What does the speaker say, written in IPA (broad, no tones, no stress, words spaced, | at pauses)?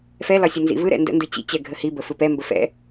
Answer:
fɛlɒ sʲənzḭvɯɾɛ̰ ndə̰ndɯ t͡ɕḭt͡ɕɛ ɡʱəhibə fɯpɛmbə fɛ̰